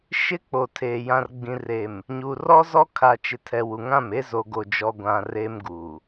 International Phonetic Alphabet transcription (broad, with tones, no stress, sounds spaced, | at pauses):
ʃ ɪ˦ k͡p o˨ tʰ eː˨ j ã˨ r ɡ͡b ĩ˨ r e˨ m | ɲ u˨ r ɔ˦ z ɔ˦ kʰ a˨ t͡ʃ ɪ˨ tʰ ɛ˨ w u˨ ŋ ã˦˨ m e˦ z o˨ ɡ o˨ d͡ʒ ɔ˨ ɡʷ ã˨ r e˦ m ɡ u˨